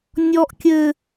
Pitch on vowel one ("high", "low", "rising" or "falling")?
high